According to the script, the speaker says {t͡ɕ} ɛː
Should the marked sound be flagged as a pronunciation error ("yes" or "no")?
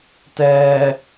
yes